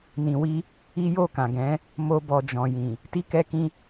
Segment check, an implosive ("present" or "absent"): absent